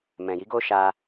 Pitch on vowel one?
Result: low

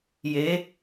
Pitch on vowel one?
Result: rising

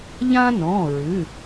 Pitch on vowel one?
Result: high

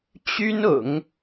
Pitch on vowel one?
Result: high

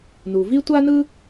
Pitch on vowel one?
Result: low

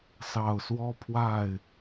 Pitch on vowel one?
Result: low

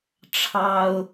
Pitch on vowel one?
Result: high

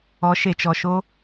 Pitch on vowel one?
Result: rising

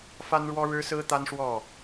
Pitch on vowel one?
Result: high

